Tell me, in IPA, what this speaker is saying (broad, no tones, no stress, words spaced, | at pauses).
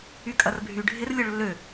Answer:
ykʼɐrbʱyɖʱɪr lʲoɭlːø